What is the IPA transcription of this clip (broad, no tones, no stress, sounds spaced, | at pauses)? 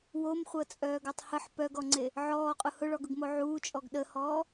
w o m χʷ ɤ t͡sʼ œː ɡ ɤ tˤ h ə ħ p œ ɡ ɔ ŋ͡ǀ e | ʕ ɔː qʼ ʊ h ʊ ɭ ɔ ɡ ʊ ɡ m o ʕ uː t͡ʃʼ ɔ ɡ ɗ ə h ɔː